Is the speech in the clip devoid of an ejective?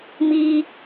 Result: yes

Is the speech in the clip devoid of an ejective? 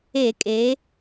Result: no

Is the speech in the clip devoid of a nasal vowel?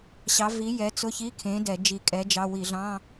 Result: no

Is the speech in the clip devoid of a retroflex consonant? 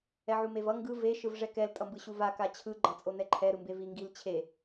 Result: no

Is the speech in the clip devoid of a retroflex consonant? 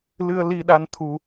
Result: yes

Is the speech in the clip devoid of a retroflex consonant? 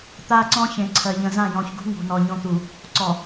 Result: yes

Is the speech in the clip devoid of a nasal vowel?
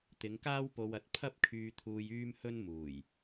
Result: yes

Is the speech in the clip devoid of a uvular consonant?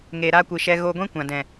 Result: yes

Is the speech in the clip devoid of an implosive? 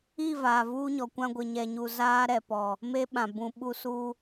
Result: no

